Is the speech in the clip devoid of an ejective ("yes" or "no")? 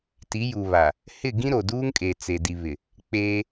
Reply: no